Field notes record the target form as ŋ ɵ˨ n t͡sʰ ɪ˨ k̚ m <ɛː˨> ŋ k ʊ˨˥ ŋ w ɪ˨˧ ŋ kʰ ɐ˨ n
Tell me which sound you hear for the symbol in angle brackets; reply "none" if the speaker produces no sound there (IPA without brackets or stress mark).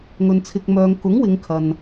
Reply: œː˨